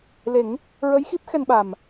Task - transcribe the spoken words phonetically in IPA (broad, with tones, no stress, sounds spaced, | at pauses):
l e˨˩˦ ŋ | ɹ ə˧˥ j x i˦˥ p̚ x ɛ˧ n ɓ a˨˩ m